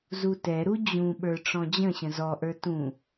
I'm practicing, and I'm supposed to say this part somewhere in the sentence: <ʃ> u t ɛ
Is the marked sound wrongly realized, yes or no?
yes